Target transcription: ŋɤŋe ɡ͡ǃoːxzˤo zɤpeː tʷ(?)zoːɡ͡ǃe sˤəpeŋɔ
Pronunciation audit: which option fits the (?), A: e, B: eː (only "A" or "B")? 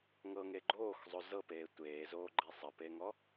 B